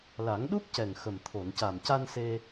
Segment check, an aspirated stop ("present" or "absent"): present